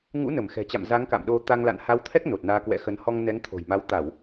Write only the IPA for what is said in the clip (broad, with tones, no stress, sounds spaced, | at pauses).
ŋ ṵ˧˥ n ə˧˩ m x ɛ̤˨˩ t͡ɕ a̰˧˨ m z a˨˦ ŋ k a̰˧˨ m ɗ o˧ t̪ a˧ ŋ l a̰˧˨ n h a˨˦ w t̪ʰ ɛ˦˥ k̚ n o˨˩ t̚ n aː˧ k w ɛ̰˧˥ x ə˨˦ n h ɔ˧ ŋ n ɛ˨˦ ŋ t̪ʰ o̤˨˩ j m a˨˦ w t̪ a˧˩˨ w